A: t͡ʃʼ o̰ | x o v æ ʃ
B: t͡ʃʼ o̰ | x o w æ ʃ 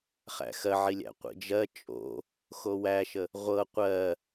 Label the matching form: B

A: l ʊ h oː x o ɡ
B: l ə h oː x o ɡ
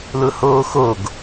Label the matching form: A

